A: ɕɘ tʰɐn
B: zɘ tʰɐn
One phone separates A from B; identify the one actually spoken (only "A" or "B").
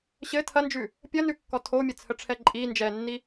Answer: A